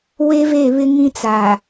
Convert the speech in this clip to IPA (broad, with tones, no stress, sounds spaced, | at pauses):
w e˦ v e˦˨ β ɪ˦ ŋ ĩ˦ t͡s a˨